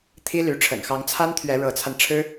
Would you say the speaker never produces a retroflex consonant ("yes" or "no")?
no